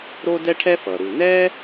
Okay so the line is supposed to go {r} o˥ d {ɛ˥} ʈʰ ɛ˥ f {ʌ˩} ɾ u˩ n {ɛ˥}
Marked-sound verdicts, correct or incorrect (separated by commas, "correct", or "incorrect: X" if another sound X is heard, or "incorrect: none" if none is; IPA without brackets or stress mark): incorrect: ɾ, correct, correct, correct